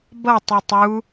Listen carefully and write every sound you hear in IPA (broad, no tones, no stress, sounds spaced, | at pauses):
b ʌ tˤ i tˤ u